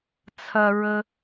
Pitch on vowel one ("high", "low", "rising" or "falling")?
high